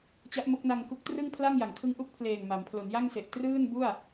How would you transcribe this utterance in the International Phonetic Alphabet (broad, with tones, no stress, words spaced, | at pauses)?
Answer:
t͡ɕa˦˥ʔmo˦˥k̚na˧ŋ ku˦˥k̚ trɯ˥˩ŋpʰla˥˩ŋ ja˩˦ŋkʰɯ˦˥ŋʔu˦˥k̚ pʰleː˨˩ŋ ma˩˦m pʰlo˩˦nja˥˩ŋse˨˩ʔ trɯː˥˩nbu˥˩a̯